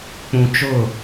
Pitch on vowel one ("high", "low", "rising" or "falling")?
low